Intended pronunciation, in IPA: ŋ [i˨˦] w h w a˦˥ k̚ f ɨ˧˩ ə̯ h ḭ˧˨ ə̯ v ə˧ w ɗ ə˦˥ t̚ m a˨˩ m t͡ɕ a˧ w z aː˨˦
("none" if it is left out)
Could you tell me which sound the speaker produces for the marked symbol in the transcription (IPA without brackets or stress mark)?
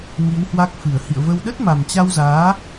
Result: i˨˦